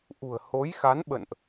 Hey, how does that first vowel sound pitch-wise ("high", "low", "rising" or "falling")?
low